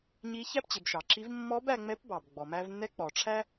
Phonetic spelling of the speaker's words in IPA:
ɲi˧˥ çæ˥pt͡ɕɪ˩˧bʃɑ˩ǁi˧˥v mːɔ˧˥b æ˧ŋ͡mɛ˧˥pbɑ˩b ɡ͡bɔ˩mæ˧vnːɛ˧˥ k͡pɔ˩ʈ͡ʂʰæ˥

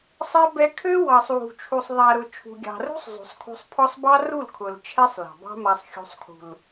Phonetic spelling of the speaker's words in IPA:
sˤɛ˧ bɛ˧ kʰø˦wɑ˨sˤ wṳ˨t͡ʃʰu˨sˤðˤa˨ɾʊ˨ t͡ʃʰṳ˨ɡʲɑ̤˨rṳ˦sˤ zˤṳ˨sˤkʰṳ˧sˤpʰɔ˦sˤ bɑ˦ru˦˨lkʰʊ˨l t͡ʃʰɛ˧sˤ lɑ̤˨bɑ̤˦ma˧sˤxʲṳ˧sˤ kʰṳ˨l

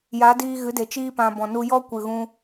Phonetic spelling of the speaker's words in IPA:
ja˨˦diː˧ ɣɨ˨˦de˨ t͡ʃiː˧pã˨ bɔ̃˨nu˧ jɔ˦kʷɨ˨ɣũ˧

